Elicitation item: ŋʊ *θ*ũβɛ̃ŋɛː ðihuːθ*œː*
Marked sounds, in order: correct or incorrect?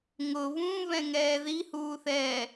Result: incorrect: β, incorrect: ɛː

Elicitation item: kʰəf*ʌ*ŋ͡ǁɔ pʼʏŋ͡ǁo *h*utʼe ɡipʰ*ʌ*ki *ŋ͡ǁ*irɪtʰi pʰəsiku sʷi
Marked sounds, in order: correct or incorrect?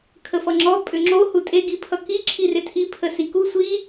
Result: correct, correct, correct, incorrect: ǁʰ

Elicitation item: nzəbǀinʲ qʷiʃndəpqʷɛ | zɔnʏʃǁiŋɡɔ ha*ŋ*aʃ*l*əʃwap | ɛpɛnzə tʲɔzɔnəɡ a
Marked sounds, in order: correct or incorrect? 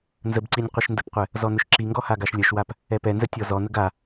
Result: incorrect: ɡ, incorrect: lʲ

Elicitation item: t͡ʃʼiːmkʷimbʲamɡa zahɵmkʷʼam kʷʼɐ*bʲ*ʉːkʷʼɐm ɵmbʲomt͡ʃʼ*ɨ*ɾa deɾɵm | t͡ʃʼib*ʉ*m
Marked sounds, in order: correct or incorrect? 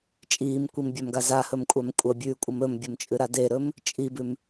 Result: correct, correct, correct

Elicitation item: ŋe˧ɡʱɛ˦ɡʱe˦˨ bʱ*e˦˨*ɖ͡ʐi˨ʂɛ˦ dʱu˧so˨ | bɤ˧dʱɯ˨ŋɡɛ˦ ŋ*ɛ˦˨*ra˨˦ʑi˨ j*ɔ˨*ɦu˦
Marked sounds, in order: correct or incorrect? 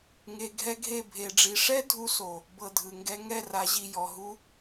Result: incorrect: e˨, correct, correct

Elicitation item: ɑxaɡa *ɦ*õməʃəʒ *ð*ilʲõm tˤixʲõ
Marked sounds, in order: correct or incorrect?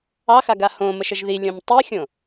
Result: incorrect: h, correct

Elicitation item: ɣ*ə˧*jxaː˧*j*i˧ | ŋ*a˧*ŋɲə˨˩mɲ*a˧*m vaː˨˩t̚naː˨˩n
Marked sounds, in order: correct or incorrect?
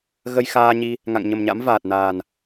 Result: correct, incorrect: ɲ, incorrect: a̰˧˨, incorrect: a̰˧˥

